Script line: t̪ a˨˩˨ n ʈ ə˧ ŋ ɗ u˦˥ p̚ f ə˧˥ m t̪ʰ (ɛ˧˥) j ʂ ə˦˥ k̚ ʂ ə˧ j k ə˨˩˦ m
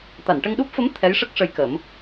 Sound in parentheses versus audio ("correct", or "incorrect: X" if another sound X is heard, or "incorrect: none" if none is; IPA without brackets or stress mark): correct